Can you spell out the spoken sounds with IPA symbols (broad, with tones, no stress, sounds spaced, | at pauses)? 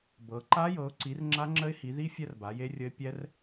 b ɤ˨˦ ǃ a˦˥ j ɤ˨˦ ʊ̯ ǀ i˨˦ r ŋ͡ǁ a˦˥ ŋ͡ǁ ə˦˥ ɪ̯ h i˨˦ ð i˦˥ fʲ ɛ˦˥ r b a˨˦ j e˦˥ rʲ ə˦˥ ɪ̯ pʲ ɛ˦˥ r